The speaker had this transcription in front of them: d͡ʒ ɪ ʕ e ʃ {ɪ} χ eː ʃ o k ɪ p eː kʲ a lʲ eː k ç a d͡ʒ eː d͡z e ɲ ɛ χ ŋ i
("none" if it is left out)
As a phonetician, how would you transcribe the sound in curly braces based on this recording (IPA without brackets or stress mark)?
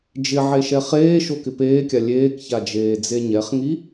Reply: ɛ